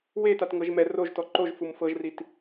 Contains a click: yes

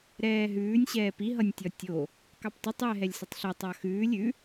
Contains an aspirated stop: no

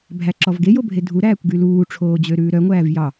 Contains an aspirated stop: yes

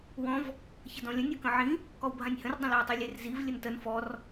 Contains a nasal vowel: yes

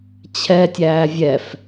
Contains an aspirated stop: yes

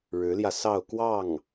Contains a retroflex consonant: yes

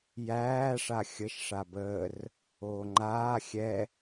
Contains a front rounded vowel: no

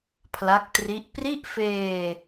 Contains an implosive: no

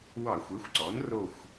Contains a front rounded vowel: no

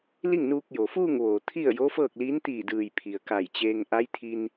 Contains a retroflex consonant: no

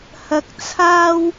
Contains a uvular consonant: no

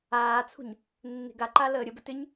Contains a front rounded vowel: yes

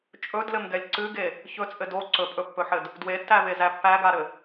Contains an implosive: no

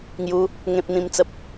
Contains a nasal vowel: yes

